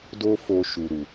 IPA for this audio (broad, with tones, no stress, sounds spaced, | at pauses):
d o˦ f o˧ ʃ u˨ ɾ u˨